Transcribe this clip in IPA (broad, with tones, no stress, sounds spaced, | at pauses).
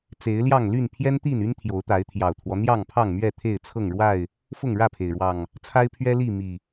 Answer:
t͡s e˨˦ ɪ̯ l j ɑ˥˨ ŋ l y˥˨ n pʰ j ɛ˦ n t̪ i˥˨ n y˦ n t̪ʰ j o˨˦ ʊ̯ t̪ a˨˦ ɪ̯ t̪ʰ j ɑ˨˩ ʊ̯ t̪ʰ w ɔ˦ n̪ j ɑ˥˨ ŋ pʰ ɑ˥˨ ŋ m ɥ ɛ˥˨ t̪ʰ e˥˨ ɪ̯ t͡sʰ ɤ˥˨ ŋ ɻ w a˥˨ ɪ̯ | f ʊ˥˨ ŋ ɻ ä˥˨ pʰ e˩ ɪ̯ ɻ w ɑ˨˩ ŋ | t͡sʰ a˦ ɪ̯ pʰ ɥ ɛ˦ l i˥˨ m i˨˩